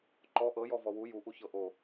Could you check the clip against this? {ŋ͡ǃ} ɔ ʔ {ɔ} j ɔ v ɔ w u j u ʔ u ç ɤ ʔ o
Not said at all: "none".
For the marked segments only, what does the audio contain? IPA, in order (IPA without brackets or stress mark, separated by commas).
ǃ, ɤ